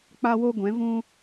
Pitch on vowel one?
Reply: high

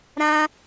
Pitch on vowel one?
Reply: high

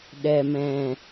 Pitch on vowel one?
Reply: low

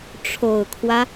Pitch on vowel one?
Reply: low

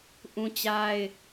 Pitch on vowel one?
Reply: high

